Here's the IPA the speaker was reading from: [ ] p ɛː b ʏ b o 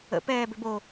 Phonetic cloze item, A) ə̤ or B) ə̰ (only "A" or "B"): B